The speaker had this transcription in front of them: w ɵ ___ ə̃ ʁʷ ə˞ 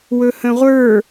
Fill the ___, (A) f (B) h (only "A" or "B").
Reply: B